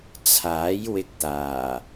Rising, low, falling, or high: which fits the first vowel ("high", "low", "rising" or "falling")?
rising